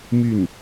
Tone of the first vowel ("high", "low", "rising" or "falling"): falling